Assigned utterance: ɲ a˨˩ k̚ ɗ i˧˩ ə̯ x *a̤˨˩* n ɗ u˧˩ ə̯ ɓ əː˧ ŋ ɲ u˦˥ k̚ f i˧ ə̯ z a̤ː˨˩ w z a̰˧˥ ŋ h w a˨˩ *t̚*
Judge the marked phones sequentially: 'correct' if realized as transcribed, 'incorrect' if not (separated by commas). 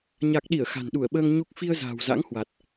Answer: correct, correct